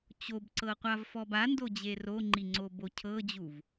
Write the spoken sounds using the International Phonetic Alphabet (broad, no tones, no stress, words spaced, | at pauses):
t͡ɕobǀɤqʷavfɔb andod͡ʑe roŋ͡ǃiŋ͡ǀobo cʰɤd͡ʑuv